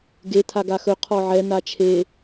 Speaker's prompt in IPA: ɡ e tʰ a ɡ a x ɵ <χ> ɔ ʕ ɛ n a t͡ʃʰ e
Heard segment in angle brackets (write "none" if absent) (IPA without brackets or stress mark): qʰ